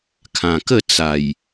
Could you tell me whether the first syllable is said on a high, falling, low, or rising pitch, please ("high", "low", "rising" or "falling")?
low